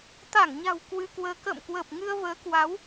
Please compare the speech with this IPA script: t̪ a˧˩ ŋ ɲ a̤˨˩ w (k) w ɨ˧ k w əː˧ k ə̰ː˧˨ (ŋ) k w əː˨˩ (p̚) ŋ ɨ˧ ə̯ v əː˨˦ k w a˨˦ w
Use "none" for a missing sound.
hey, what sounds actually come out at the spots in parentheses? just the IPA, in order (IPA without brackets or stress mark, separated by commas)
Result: k, m, p̚